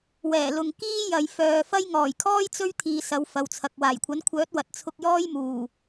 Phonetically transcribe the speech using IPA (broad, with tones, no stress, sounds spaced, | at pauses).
w ɛː˨˩ l ʊ˨ ŋ k iː˥ j ɐ˨ j f œː˨ f ɐ˥ j ŋ ɔː˨˩ j kʰ ɔː˥ j t͡s ɵ˥ ɥ t̪ʰ iː˨˧ s ɐ˨˧ w f ɐ˨ w t͡sʰ ɐ˨ k̚ w aː˨˩ j kʷʰ ɐ˨˥ n kʷʰ œː˨˥ t̚ w ɐ˨ t̚ t͡sʰ ʊ˧ k̚ j ɔː˥ j m uː˨˩